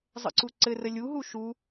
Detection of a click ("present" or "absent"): present